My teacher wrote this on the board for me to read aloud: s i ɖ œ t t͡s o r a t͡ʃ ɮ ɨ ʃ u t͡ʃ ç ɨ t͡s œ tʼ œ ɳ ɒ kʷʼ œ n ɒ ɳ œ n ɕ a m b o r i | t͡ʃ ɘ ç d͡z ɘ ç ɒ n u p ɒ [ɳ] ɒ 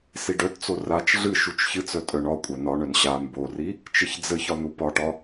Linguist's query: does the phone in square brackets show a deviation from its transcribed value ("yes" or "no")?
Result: yes